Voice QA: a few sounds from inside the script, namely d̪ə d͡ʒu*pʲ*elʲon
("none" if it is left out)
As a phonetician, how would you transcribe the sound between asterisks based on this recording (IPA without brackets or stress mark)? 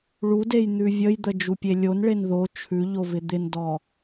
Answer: pʲ